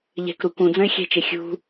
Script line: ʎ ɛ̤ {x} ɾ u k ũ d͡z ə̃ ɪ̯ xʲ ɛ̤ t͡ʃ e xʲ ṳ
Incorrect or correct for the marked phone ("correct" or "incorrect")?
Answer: incorrect